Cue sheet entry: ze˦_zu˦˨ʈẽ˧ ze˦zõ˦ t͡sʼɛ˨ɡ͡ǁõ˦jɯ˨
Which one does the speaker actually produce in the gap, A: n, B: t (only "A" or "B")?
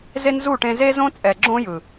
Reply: A